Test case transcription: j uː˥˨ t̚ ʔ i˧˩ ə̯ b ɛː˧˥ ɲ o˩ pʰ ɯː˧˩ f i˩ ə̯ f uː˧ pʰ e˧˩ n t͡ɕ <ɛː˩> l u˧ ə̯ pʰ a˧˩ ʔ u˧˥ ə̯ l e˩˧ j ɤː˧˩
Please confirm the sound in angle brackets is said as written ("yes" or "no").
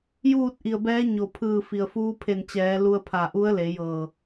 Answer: no